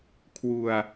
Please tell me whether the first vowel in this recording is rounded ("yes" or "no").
yes